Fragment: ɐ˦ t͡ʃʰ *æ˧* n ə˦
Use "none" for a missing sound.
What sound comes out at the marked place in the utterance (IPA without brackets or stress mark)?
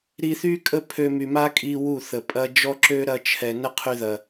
ɛ˧